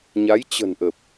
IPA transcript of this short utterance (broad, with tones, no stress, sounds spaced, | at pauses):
ɲ a˨˦ j t͡ɕ ə̤˨˩ n ʔ ə˨˩ p̚